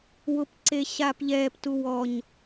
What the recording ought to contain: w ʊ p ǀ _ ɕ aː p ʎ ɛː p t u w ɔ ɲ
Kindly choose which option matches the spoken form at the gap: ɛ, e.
e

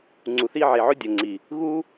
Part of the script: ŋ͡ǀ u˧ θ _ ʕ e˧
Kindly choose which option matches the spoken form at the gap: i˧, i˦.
i˦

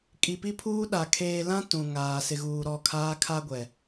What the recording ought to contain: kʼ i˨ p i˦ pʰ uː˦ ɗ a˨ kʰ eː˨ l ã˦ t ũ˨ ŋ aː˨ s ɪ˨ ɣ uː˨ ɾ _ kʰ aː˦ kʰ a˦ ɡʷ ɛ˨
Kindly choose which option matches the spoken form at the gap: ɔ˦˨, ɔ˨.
ɔ˦˨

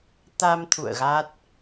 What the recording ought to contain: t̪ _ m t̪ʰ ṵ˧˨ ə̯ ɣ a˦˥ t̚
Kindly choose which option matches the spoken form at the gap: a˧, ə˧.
a˧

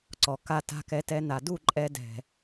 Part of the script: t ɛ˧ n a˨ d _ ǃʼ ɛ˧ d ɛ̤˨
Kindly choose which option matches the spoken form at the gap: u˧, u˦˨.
u˦˨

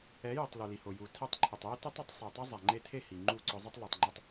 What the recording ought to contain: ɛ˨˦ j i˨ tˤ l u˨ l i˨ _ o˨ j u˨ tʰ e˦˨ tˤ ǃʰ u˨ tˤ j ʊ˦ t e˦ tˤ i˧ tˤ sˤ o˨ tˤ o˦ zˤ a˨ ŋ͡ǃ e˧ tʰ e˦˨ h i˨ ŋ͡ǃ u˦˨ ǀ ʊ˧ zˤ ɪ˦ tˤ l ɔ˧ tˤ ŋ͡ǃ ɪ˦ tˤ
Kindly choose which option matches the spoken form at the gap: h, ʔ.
h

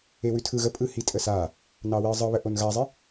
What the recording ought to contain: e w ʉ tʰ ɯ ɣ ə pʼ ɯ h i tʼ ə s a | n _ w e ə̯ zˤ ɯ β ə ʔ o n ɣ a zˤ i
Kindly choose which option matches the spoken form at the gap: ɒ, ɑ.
ɑ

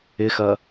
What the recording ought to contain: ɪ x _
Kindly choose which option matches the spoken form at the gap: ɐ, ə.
ɐ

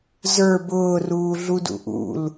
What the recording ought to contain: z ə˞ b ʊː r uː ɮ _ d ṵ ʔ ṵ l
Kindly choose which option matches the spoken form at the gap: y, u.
u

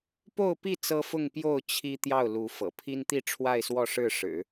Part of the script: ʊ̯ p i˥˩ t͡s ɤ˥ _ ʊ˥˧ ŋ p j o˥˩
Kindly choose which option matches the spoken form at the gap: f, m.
f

